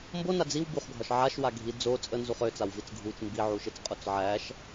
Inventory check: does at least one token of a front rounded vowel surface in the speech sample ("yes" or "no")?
yes